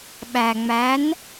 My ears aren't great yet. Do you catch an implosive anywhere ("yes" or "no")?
yes